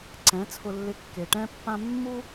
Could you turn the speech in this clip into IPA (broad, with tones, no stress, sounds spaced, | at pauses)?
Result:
ǀ ɛ̃˨˦ t͡sʰ ʊ˧ lː ɪ˧ kː e˨ ʈ ɛ̃˦ pː ã˦ mː u˦